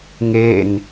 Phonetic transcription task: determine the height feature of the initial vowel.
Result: mid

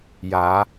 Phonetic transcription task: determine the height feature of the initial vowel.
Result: low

